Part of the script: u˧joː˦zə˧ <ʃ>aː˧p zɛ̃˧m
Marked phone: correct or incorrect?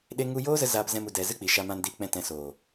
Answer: incorrect